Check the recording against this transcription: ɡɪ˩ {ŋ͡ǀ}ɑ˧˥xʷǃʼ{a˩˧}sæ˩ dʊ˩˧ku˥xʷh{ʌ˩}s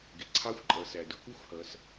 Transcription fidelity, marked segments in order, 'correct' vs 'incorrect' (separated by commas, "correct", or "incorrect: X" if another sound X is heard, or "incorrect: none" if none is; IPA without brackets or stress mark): incorrect: ǀʰ, incorrect: ʌ˩˧, incorrect: ʌ˩˧